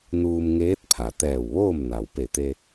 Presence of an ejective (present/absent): absent